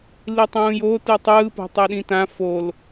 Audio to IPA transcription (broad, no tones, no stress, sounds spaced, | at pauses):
l i tˤ ũː j o t ɯ tˤ ɯː p o̤ tˤ ɛ ɗ ĩ t ã f o l